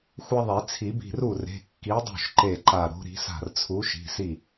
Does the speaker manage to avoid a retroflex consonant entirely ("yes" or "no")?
yes